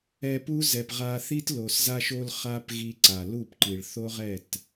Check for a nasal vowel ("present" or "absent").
absent